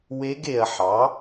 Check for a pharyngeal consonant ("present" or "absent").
present